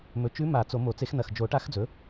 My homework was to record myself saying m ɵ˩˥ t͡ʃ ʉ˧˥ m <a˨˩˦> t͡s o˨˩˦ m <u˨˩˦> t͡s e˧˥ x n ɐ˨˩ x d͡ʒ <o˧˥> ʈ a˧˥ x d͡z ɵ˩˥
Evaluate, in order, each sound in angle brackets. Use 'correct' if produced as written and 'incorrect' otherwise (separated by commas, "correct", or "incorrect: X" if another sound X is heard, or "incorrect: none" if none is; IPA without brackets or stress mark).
correct, incorrect: o˨˩˦, incorrect: o˨˩˦